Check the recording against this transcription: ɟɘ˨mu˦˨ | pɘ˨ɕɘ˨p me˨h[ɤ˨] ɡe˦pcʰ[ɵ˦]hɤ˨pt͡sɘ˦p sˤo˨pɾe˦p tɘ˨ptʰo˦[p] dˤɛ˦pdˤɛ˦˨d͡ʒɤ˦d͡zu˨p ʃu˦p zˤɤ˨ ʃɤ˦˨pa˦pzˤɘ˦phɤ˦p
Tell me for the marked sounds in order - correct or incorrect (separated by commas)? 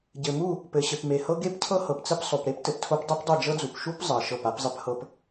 incorrect, incorrect, correct